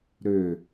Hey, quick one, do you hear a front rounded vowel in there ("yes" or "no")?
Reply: yes